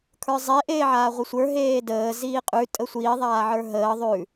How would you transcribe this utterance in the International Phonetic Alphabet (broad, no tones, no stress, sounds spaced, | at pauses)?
kʰ ə˞ zˤ e ʔ eː ʕ aː ʁʷ ə sʷ ə˞ ɦ eː d əː z iː qʼ ʉ tʼ ə sʷ i ðˤ aː ʕ ə˞ ɦ əː ðˤ ʉ